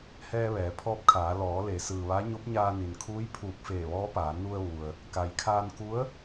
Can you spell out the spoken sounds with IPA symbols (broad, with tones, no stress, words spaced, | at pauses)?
hɛː˧ʋɛː˩˧pʰɔː˧p̚kʰaː˩˧ lɔː˩˧le˩˧ sɯː˩ʋa˧˥ ɲo˧˥p̚ɲaː˧ni˩nkʰuː˧˥j pʰuː˧˩k̚feː˧˩ ʋɔː˧˥paː˩˧ nu˧ə̯ʋu˩ə̯ | ka˩jkʰaː˧n ku˧˥ə̯